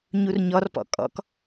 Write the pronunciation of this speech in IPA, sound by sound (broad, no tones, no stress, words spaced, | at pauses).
ɲurɲɔrpɔ̰ kʼɔ̰k